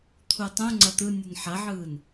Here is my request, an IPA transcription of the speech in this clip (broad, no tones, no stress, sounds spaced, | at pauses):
t̪ʰ u tˤ ũ ŋ͡ǀ ɐ t̪ ɯ nʲ ɯ n ħ ɐ ʕ ɯː n